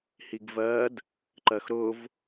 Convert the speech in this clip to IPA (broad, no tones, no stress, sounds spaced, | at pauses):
h i ɡ v ɜ d | ǃ ɜ x ɾ ʊ v